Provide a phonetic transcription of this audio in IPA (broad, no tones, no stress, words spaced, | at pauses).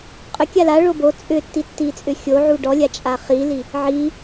qʼʏ kʲala ɭobo t͡sʼʏtːitːit͡sʼʏ xʲo ʕuɖɔlʲa t͡ʃʼaχili | ʕi